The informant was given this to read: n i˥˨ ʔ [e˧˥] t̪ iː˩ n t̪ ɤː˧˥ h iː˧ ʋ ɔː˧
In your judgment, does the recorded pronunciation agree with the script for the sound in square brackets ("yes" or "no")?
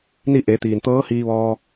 no